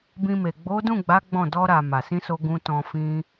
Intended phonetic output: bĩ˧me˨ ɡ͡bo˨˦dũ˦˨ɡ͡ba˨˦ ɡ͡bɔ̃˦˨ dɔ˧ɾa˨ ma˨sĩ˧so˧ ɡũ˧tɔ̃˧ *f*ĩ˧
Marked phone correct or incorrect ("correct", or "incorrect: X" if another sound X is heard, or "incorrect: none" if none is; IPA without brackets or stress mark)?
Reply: correct